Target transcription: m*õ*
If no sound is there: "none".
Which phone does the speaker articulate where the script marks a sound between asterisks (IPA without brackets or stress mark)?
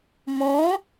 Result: õ